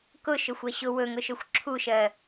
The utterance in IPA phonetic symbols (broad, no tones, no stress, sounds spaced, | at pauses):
k ʊ ʃ ɵ xʷ ɜ ɕ ʊ w ɵ ŋ ʊ ʃ ɵ xʷ ǁʰ u ʃ ɜ